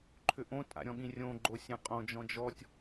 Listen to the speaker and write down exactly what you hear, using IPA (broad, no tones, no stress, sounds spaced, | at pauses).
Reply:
ǃʰ ʏ ʔ õ tʼ a̰ ɾʲ ɔ̃ ɠ ĩ rʲ õ ɡ͡ǃ o sʲ ã qʼ õ d͡ʒ ɔ̃ d͡ʒ ɔ tʲ